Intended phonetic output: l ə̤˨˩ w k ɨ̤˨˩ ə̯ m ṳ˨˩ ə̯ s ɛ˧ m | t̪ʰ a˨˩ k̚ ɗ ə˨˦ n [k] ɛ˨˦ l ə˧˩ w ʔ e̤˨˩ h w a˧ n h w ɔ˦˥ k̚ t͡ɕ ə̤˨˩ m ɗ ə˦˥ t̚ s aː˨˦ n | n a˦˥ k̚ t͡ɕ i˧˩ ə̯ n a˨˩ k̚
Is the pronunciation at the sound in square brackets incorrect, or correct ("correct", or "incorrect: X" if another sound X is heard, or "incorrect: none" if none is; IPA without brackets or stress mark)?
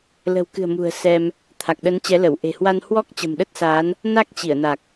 incorrect: t͡ɕ